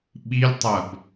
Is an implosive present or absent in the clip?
present